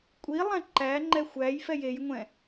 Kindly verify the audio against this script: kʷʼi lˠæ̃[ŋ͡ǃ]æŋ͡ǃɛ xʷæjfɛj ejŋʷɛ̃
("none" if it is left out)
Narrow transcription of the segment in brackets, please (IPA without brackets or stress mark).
ǃ